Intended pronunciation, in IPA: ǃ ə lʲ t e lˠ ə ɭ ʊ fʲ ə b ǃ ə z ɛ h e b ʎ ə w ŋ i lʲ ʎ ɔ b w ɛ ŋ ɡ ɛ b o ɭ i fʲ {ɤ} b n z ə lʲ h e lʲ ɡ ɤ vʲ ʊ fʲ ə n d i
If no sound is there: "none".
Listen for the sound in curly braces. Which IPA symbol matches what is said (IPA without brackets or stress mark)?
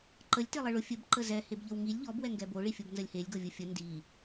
ɤ